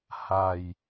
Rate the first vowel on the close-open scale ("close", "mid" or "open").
open